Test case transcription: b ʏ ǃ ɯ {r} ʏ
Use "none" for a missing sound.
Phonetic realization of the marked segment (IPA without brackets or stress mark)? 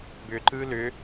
l